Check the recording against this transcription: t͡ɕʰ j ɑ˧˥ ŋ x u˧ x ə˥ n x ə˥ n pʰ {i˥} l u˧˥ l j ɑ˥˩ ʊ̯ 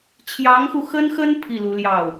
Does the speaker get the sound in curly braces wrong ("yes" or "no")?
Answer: yes